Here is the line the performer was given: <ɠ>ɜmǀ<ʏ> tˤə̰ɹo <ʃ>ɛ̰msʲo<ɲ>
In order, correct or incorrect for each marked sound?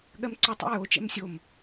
correct, correct, incorrect: t͡ʃ, incorrect: m

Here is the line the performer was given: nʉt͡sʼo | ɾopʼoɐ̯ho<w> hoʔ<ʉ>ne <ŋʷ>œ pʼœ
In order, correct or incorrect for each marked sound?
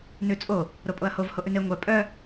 incorrect: v, correct, correct

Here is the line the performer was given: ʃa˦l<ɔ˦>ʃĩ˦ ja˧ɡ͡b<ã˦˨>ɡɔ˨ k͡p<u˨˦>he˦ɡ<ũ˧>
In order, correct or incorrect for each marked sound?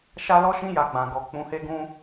correct, incorrect: ã˨, incorrect: ũ˨˦, incorrect: ũ˦

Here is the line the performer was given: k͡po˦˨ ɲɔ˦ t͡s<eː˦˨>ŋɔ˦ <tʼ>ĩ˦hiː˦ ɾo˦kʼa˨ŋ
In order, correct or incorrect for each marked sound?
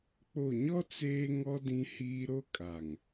incorrect: eː˦, incorrect: d

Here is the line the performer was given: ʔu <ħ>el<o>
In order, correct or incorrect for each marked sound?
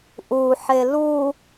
correct, incorrect: u

